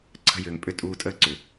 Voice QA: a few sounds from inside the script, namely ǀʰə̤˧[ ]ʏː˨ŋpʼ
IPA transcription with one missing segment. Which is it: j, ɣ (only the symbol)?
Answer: j